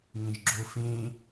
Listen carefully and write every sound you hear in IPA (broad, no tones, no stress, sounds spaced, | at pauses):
ŋ ẽ ʒ ɡ͡ǁ o f ẽ